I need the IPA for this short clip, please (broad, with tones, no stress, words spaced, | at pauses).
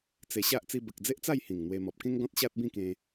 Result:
t͡se˧ɕa˦ʔ t͡si˧bə˨k̚d͡ze˦ʔt͡sa˥˧j hĩ˨˩ŋn̪we˧ mɔ˨p̚kẽ˦ŋ ɡɔ̃˦t̚ɕa˦t̚bĩ˥˧kẽ˧